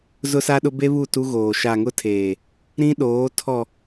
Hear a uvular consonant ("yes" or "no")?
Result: no